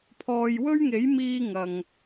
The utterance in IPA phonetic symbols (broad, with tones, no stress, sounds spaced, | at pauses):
pʰ ɔː˨ j w ɵ˥ ɥ ŋ e˨˥ j m iː˥ ŋ ɐ˨ ŋ